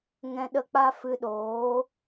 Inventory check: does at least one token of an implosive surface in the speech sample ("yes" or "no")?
yes